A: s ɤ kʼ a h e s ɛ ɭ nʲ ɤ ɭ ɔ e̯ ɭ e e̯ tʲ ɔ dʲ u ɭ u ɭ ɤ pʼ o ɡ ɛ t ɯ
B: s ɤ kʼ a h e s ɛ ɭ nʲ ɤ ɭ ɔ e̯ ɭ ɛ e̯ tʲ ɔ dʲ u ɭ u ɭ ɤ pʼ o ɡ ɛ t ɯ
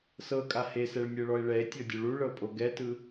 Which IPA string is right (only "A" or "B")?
B